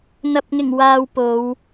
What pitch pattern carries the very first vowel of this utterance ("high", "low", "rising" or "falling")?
low